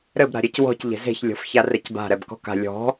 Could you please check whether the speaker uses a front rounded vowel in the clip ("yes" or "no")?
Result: no